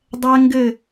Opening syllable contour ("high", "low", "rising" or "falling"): high